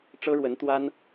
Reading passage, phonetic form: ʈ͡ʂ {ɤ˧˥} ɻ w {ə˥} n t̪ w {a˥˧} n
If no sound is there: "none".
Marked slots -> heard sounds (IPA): ɤ˥, ə˧˥, a˥

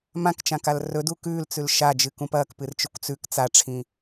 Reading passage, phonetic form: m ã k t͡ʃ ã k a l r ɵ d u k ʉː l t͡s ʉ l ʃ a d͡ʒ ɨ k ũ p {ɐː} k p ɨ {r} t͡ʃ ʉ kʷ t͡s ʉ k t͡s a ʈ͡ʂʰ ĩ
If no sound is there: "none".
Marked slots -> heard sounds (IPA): ɐː, r

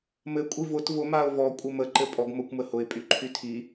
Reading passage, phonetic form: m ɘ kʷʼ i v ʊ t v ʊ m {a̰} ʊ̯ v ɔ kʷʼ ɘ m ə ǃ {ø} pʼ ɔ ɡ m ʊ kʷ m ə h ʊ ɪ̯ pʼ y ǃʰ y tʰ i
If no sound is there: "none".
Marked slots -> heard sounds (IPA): a, ɘ

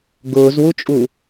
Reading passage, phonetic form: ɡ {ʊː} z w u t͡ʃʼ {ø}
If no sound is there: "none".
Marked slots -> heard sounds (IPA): ʊː, u

